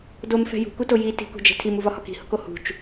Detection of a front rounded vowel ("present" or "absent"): absent